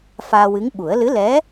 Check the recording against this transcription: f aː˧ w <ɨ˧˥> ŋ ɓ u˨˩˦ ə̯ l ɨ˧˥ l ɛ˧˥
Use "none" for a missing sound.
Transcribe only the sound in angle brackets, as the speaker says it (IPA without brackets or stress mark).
ɨ˧˥